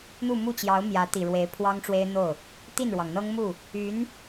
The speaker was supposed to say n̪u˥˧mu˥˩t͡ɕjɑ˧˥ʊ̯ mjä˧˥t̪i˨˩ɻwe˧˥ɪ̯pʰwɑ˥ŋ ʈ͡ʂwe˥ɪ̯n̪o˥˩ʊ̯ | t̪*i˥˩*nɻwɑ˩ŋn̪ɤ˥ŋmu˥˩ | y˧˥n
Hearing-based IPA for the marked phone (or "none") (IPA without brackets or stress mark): i˥˩